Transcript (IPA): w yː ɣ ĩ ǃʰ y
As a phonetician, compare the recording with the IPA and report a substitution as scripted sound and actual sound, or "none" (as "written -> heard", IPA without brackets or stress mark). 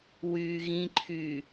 none